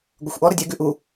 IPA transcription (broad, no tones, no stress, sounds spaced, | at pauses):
ɡʷ ə xʷ ʔ ɔ ɾ ə dʲ ɛ ɡ ʉ ʔ u